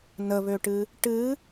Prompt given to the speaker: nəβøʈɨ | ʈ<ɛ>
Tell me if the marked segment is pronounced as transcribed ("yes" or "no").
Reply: no